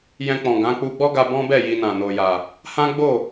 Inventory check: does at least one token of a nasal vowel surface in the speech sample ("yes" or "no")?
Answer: yes